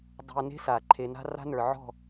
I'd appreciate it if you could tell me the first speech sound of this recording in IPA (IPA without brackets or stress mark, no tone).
dˤ